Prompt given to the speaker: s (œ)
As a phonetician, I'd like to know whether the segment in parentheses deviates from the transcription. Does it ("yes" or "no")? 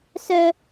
no